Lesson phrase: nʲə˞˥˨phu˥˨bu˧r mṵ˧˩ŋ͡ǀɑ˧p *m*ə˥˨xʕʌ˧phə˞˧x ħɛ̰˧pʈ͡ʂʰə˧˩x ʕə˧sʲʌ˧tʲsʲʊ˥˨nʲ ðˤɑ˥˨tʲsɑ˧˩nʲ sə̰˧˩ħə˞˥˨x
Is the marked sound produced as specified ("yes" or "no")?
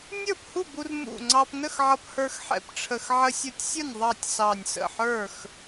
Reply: no